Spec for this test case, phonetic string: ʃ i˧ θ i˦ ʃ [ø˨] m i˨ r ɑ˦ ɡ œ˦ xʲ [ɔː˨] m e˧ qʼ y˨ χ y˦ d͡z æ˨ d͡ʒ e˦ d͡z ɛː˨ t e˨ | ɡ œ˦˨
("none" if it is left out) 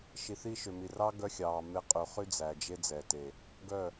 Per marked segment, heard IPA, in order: ø˨, ɑː˨

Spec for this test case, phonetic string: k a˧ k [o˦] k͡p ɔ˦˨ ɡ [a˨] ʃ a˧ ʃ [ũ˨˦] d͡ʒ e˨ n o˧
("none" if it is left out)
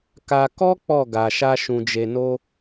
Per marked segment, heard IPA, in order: ɔ˦, a˨, ũ˨

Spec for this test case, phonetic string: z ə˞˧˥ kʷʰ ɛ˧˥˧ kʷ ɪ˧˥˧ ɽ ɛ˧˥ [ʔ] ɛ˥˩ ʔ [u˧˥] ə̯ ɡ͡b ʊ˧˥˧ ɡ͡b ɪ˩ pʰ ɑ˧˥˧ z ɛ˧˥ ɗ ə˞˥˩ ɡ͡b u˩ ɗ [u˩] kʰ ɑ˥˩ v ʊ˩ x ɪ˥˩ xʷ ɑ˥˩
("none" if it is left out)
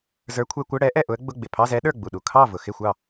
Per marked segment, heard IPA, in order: ʔ, ʊ˧˥, u˩

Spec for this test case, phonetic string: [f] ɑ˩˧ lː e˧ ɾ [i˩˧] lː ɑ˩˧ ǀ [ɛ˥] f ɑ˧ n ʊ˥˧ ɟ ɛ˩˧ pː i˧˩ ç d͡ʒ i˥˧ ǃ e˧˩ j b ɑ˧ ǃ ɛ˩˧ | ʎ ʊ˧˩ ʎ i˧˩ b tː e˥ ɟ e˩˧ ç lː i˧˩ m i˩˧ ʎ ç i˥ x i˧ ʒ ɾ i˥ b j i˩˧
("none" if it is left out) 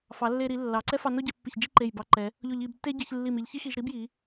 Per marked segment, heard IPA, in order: f, i˩˧, ɛ˥

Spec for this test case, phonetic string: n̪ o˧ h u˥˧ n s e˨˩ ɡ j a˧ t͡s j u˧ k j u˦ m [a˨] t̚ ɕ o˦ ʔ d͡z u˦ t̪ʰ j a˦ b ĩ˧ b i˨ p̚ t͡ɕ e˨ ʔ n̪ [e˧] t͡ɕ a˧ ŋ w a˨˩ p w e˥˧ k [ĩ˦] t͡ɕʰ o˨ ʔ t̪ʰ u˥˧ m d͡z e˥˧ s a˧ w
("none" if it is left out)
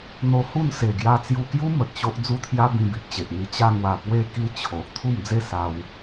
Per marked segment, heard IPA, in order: ə˨, i˧, i˦

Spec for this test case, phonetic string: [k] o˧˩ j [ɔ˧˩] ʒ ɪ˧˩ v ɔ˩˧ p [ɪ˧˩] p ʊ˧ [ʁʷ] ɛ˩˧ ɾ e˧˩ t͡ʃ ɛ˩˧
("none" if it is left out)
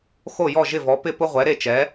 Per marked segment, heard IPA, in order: x, ɔ˧˩, ɪ˧˩, ʁʷ

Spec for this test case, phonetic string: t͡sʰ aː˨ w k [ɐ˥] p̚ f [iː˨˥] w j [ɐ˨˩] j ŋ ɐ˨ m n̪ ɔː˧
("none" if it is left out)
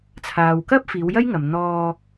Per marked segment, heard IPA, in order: ɐ˥, iː˨˧, ɐ˥

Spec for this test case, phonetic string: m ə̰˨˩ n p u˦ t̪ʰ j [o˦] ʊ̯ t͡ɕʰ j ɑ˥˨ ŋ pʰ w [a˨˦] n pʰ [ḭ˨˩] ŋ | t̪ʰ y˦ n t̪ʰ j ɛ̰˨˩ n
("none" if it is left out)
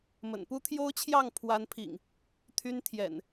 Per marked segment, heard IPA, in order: o˦, a˨˦, ḭ˨˩

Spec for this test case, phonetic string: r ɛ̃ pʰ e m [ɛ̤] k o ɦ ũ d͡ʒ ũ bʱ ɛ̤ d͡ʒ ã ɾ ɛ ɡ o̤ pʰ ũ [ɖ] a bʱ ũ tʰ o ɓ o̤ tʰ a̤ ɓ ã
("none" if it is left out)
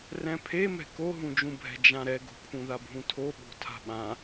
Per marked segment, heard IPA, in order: ɛ̤, ð

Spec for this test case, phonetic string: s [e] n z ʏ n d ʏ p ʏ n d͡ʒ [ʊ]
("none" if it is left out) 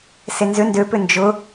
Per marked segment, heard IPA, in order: e, ʊ

